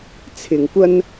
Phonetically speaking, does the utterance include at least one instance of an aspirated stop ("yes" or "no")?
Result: yes